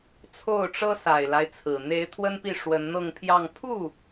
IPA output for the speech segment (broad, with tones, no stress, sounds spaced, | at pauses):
t͡sʰ o˥˩ ʊ̯ ʈ͡ʂ ɤ˥ s a˨˩ ɪ̯ l a˦ ɪ̯ t͡sʰ ɹ̩˨˩ n̪ e˧˥ ɪ̯ t̪ʰ w ə˥ n p i˥˩ ʂ w ə˧˥ n n̪ ɤ˥˧ ŋ pʰ j ɑ˥˧ ŋ pʰ u˥˩